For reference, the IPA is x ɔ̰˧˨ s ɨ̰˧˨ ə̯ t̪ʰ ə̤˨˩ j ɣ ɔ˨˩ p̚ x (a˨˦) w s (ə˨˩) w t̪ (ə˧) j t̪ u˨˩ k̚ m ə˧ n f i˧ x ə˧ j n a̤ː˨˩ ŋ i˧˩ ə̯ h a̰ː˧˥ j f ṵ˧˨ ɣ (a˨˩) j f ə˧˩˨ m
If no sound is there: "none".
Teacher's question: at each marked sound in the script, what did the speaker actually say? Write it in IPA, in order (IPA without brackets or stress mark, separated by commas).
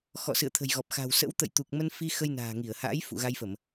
a̤˨˩, ə̰˧˥, ə̰˧˨, a˧